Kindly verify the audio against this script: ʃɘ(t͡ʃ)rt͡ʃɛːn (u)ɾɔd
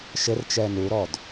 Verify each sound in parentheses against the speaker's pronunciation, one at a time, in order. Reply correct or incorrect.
incorrect, correct

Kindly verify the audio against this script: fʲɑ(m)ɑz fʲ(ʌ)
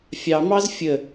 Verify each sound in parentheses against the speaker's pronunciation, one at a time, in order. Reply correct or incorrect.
correct, incorrect

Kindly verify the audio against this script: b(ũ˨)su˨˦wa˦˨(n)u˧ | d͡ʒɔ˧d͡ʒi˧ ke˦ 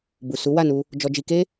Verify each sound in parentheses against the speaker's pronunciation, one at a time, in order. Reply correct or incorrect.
incorrect, correct

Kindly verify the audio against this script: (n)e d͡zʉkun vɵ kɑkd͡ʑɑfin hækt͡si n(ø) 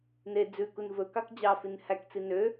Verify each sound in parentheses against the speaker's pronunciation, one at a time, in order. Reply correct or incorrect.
correct, correct

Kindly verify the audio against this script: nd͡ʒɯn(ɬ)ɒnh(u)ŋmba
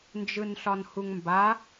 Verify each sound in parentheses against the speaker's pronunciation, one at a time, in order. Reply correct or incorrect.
correct, correct

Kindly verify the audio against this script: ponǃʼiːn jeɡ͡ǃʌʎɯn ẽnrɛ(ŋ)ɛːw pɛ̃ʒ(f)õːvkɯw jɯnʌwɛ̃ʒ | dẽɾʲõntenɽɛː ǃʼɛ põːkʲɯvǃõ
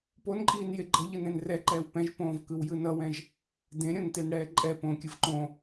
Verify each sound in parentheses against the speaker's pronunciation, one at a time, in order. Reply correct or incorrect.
incorrect, incorrect

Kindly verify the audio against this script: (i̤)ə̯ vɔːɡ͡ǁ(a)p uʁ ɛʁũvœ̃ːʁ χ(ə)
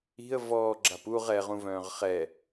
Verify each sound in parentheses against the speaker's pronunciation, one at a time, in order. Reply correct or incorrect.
correct, correct, incorrect

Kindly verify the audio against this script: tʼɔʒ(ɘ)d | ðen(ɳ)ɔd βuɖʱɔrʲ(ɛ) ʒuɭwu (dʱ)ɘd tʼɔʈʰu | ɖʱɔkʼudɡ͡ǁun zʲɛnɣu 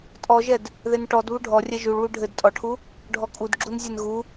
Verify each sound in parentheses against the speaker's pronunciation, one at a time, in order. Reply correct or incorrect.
incorrect, incorrect, correct, incorrect

